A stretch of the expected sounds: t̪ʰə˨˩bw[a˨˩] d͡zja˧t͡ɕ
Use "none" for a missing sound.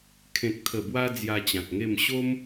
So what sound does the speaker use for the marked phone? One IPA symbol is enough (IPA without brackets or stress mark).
a˧